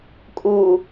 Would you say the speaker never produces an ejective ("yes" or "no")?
no